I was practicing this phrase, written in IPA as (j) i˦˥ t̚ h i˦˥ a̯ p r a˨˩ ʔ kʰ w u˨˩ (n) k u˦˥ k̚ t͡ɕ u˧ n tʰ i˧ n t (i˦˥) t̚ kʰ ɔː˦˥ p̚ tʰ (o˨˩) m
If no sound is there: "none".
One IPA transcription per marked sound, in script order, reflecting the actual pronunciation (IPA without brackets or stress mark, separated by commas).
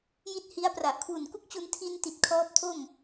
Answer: j, n, i˨˩, o˥˩